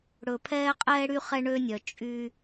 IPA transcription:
ɽɵ˨pʰɛː˦qʼɛː˦ɽy˦ χɛ˦ɳø˦nʲœ˨ t͡ʃʼy˦

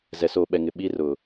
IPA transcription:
zɛ˨soː˨ɓɛ˨ ŋɪ˨ɓi˦ rʊ˨

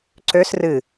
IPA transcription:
ǀøs rɨ

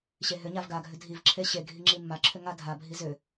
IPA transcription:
ɕeɦʏɲav ɡaɡʱʏ dʱivǁʰe ɕe ɡʱiŋ͡ǁimːaǁʰʏ ŋadʱabʱi zʏ

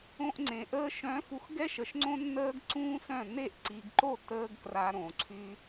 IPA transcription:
õ˧ʔŋ͡ǀẽ˨ ʔəː˧ʃœ̃˨˦fu˨x ɡɛ˦ʃə˨ʃ ŋ͡ǀõ˦nːəː˦ɡǀũː˦sœ̃˦˨ ne˦˨ʔǀi˨ɡǃo˦˨ təː˦ɡkra˧ ɾõ˨ǀʰy˦

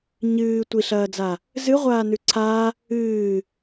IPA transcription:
ɲɨː tʷiɬɐːd͡za | zɨʁʷaːnʉ ǀʰa | ɨː

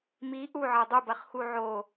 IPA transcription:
mi ʔuʕɤ dˤubɐχxu ʕo

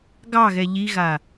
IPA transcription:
ɡɑ ɣɛʎiɣa

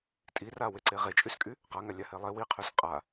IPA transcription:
tʼiraweǀe ʁet͡ʃʼyskʼy | qaŋalʲahe lˠe wiqʰys qʼa

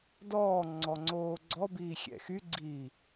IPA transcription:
dɔː ŋ͡ǀɔŋ͡ǀoːɡ͡ǀɔbiː xʲɛ̰xyɡ͡ǀiː

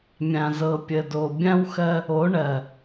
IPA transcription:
mʲã˨zɤ˨pʲə˨do˨ bʲã˦wxɜ˦ | o˨˦ɳɜ˨

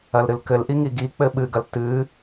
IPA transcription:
ɐlɾɨlkɘlʔi ŋiɡik͡pɘ ɓɨɡɐl tɨ

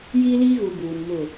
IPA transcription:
jiː˦liː˦ɣu˨ buː˨n mʊ˦˨

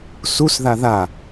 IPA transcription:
susða ða

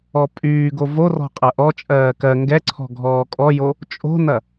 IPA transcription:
ɔpʼyːɡo vorɔ̤ qʼɐʔɔt͡ʃʼɜː kɜ ŋɡɛǀʰɔ̤ ɡʱɔːkʼɔjo | t͡ʃʼo̤nɐ

